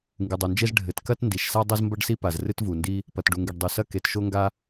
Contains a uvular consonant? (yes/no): no